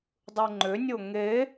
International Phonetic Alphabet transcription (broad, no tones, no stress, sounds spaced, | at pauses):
dˤ ɯ ŋ͡ǃ ʏ nʲ o ŋ e